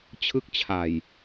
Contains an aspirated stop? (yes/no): yes